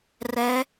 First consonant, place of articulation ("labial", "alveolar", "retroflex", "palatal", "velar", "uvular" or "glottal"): alveolar